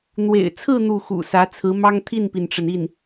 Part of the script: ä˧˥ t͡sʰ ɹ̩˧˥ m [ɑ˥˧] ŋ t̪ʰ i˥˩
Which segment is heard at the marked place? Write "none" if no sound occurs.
ɑ˥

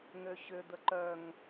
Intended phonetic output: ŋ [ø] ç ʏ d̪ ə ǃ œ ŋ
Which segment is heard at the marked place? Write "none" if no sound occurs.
ø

